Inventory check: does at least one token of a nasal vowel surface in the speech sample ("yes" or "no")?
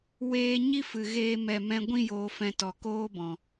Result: yes